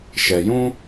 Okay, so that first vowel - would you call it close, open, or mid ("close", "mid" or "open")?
mid